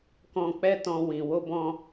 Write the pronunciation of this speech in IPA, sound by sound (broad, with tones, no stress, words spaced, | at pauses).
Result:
kɔ̃˧k͡pɛ˦tɔ̃˧ wĩ˨wo˧bɔ̃˧